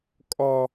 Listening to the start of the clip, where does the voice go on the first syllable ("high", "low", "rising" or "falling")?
high